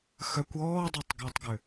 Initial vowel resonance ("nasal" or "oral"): oral